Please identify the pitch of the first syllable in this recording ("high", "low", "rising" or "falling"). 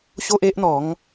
high